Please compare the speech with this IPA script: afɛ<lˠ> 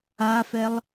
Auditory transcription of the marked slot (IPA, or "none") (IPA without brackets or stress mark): lˠ